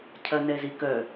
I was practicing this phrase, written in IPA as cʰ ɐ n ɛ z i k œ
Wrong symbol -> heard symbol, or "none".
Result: none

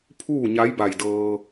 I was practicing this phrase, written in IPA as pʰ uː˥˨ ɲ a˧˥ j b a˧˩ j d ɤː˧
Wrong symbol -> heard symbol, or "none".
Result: none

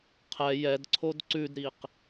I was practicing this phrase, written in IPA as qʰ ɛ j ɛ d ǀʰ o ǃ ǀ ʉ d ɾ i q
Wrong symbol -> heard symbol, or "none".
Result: ǃ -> d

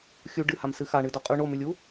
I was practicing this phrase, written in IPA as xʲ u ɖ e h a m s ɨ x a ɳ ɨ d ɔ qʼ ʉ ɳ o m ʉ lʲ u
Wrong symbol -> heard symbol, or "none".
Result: e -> ɨ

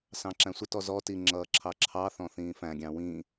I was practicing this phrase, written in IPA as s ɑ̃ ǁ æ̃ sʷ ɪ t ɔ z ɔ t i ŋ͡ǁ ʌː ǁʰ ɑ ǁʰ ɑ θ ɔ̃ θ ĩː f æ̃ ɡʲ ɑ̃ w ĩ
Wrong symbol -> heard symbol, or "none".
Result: none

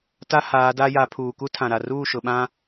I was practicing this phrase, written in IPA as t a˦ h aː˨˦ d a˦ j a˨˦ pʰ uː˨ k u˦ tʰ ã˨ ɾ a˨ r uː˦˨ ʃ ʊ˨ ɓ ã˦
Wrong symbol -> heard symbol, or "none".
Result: none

